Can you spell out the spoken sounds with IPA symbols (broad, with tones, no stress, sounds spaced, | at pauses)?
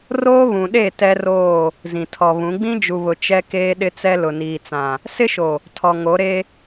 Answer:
r oː˦ β ũ˨ ɗ e˦˨ t ɛ˦ r oː˦˨ | z ĩ˨ tʰ ɔ˨ β ũ˨˦ ɡ͡b ĩ˦ d͡ʒ u˨ β ʊ˨ t͡ʃ ɛ˦ k eː˦ ɗ ɪ˦ t͡s ɛ˦ l ʊ˨ n iː˨ t͡s ã˨ | s ɪ˦ ʃ o˨ | tʰ ɔ˨ ŋ o˨˦ ɾ e˦